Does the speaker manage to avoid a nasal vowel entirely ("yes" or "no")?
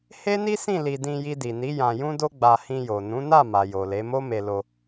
no